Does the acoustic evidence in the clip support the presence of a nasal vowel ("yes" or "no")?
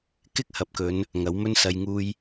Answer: no